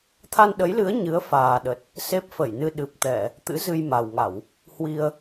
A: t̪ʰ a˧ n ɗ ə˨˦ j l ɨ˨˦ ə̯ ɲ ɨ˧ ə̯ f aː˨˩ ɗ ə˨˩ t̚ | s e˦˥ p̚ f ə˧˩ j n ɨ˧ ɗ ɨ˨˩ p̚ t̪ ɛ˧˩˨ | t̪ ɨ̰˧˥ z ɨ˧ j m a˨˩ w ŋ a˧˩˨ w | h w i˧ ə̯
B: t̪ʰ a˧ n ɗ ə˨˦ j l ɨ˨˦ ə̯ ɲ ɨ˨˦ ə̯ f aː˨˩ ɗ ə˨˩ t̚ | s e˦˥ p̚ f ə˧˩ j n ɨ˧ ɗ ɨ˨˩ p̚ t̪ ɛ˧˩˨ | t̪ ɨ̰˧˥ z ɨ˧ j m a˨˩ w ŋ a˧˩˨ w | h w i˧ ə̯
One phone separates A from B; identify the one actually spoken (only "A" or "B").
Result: B